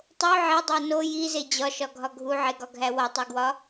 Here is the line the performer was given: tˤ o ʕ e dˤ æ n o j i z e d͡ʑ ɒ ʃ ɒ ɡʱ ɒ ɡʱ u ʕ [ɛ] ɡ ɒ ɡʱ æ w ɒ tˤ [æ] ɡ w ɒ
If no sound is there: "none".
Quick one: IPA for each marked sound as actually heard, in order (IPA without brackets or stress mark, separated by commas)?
e, æ